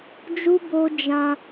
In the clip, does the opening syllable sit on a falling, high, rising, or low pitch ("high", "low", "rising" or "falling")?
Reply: high